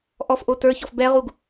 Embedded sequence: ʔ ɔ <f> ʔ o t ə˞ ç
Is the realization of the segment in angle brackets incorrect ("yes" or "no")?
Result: no